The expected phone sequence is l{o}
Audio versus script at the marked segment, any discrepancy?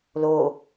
no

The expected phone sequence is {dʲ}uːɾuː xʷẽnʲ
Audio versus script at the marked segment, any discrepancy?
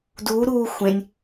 yes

